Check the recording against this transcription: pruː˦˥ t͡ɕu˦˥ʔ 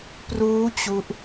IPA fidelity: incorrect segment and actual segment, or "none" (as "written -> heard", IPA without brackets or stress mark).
none